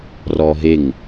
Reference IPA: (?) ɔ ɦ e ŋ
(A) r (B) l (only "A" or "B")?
A